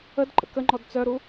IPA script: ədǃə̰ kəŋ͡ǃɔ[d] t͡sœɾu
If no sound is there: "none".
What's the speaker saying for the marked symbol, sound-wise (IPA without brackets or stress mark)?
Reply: d